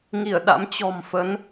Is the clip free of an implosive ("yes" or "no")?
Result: no